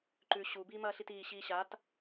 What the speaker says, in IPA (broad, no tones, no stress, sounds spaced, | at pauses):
ǃ ʉ ɕ u b iː m ɐː ɬ i t iː ɕ iː ɕ a t